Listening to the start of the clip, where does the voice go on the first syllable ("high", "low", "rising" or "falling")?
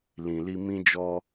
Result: low